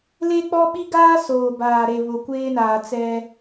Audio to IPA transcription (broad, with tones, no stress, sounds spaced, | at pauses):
l e˦ k͡p ɔ˦ ɓ i˦ ɡ aː˦ s oː˨ b aː˨ ɾ e˨ β ʊ˨ kʷ eː˦ n aː˨ t͡s ɛ˦